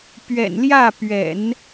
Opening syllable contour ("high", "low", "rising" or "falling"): low